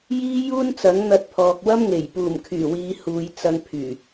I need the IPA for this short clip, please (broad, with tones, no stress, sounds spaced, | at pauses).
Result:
j iː˥ j uː˥ n t͡s ɐ˨˥ ŋ n̪ ɐ˧ t̚ pʰ ɔː˨ k̚ w ɐ˥ m ŋ e˨˩ j p uː˨˩ m kʰ yː˨˩ w iː˨˧ h uː˨ j t͡s ɐ˧ ŋ pʰ yː˨˩